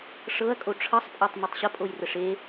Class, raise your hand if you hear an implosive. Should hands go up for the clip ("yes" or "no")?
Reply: no